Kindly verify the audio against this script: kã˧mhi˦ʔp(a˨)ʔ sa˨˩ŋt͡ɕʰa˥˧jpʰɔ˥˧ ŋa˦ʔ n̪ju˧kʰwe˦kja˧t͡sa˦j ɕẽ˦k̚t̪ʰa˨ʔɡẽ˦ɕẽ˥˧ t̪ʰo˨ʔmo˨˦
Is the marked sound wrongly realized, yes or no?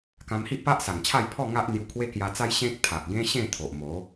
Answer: yes